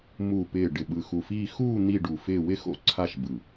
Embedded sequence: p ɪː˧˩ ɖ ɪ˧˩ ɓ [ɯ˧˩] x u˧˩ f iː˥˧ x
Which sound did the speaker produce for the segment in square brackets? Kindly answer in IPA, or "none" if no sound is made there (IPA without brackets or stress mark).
ɯ˧˩